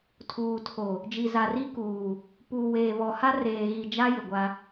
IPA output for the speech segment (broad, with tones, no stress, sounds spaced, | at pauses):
tʰ uː˨ tʰ o˨ | d͡ʒ i˨ z a˨ r i˦ k uː˨ | p uː˨ w eː˨ β ɔ˨ h a˦ r eː˨ ɣ i˨ d͡ʒ a˦ j ɪ˨ ɡʷ a˦